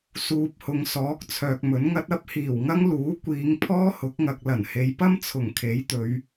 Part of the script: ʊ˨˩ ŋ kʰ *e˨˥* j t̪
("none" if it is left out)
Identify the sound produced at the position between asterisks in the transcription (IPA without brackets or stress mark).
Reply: e˨˥